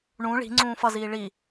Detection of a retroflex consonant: present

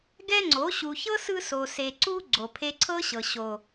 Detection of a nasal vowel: absent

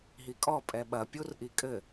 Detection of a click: absent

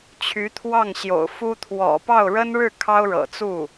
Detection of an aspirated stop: present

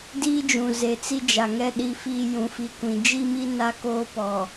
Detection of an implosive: present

